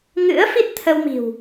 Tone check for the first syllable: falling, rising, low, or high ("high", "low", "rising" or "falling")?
rising